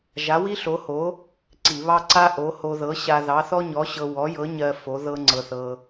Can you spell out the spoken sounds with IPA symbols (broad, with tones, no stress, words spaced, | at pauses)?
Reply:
ʒa˨˥wi˥ɬo˨˥ho˨˥ | ǀi˧˩˧βɑ˥ ǀa˥ʔo˨˥ho˧ ðɤ˨˥ɕa˧ ðɑ˨˥θɔ˥ɲɔ˨˥ɕɤ˧ wɔ˨˥jɤ˨˥ɲɜ˧ fo˨˥ ðɤ˥ŋ͡ǀɤ˧θɤ˧